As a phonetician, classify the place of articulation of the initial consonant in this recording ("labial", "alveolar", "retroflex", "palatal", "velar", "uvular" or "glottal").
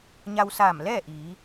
palatal